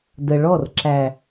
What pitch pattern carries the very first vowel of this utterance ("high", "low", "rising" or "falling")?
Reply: low